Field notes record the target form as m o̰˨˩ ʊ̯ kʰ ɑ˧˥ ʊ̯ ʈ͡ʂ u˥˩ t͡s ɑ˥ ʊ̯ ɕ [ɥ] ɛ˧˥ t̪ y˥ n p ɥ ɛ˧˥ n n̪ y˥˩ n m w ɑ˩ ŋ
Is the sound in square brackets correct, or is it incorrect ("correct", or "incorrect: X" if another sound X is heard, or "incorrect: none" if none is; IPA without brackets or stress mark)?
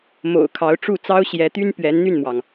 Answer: incorrect: j